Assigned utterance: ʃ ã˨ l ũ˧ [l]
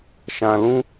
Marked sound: incorrect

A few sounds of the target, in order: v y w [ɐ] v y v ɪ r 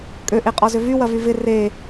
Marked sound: correct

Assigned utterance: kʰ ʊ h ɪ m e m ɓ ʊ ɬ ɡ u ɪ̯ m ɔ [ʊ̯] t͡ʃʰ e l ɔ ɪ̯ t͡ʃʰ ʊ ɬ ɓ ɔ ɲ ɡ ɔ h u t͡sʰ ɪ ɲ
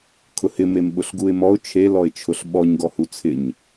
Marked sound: correct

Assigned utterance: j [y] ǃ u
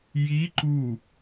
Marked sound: incorrect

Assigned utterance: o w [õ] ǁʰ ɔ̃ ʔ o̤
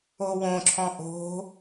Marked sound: correct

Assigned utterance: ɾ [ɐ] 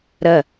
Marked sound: correct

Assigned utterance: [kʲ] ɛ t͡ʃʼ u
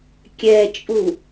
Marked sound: correct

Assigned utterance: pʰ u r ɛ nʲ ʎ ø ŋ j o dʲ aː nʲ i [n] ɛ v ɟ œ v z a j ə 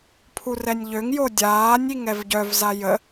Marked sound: incorrect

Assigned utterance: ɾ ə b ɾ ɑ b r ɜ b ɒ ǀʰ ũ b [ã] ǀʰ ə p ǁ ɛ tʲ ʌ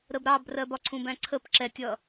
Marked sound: incorrect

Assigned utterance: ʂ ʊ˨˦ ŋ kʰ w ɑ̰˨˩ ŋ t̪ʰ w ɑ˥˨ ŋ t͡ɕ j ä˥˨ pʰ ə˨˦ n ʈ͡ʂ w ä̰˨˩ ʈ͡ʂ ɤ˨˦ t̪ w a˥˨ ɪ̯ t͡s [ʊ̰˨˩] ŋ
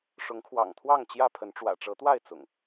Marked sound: correct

